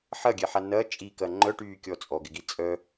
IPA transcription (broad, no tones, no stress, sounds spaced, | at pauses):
ħ ɐ ɡʲ ɛ ħ a n ɐ t͡ʃʼ i k ɐ ŋ͡ǃ œ ʈ yː kʲ ɔ t͡sʼ ɔ ɡ ɪ ɡ i t͡sʼ œ